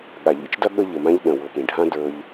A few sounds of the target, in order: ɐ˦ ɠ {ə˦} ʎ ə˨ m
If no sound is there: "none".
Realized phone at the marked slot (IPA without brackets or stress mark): ə˦